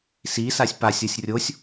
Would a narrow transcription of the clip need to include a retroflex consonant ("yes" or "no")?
no